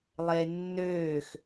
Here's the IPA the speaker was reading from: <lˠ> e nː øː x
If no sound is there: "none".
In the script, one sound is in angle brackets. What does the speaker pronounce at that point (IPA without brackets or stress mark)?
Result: lˠ